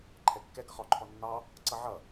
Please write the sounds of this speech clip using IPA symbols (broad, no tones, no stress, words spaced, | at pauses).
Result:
ǃʰɛkːɛɡ ʌχɔǃʰɔ nːɑ | ǀʌʕʌ